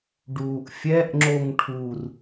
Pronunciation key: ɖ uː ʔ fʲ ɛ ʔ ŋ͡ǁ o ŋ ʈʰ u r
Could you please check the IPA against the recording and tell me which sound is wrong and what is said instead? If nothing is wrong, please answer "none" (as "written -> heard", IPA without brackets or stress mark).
none